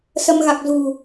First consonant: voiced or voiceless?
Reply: voiceless